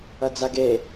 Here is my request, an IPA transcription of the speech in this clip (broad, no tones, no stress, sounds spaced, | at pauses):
ɐ d͡z a ɡ e